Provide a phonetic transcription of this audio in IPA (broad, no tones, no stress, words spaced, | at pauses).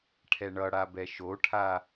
ʈʰɛɳʌɽabɛ ʃoʈʰa